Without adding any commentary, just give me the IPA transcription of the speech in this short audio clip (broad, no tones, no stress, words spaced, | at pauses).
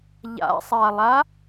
ʎa̰sˤalˠa